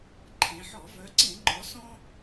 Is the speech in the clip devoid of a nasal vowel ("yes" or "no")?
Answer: no